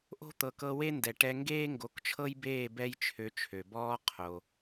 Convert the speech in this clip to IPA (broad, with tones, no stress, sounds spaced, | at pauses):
ʔ o̤˥ t̪ ɤ˩ k ɤ˧ w e˥ n d ɛ˩ ʈ ɛ˧ ŋ ɡ eː˥ ŋ ɡ o˩˥ k t͡ʃʰ ɤ˥ j b eː˥˩ b ɛ˥ j t͡ʃʰ ø˧ t͡ʃʰ ø˩ b ɔː˥ qʰ o˩